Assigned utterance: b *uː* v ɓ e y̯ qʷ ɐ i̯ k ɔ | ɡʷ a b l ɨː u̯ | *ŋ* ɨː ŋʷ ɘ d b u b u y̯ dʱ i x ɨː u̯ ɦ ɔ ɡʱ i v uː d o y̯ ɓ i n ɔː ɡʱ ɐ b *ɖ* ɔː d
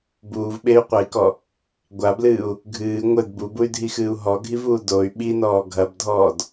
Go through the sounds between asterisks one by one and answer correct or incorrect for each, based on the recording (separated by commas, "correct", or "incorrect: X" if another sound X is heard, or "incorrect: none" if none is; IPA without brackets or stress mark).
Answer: correct, incorrect: ɡʱ, incorrect: dʱ